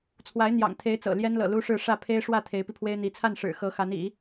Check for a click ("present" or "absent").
absent